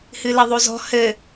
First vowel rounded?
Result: no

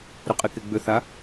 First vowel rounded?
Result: yes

